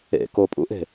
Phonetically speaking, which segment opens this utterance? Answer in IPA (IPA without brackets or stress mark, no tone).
ḛ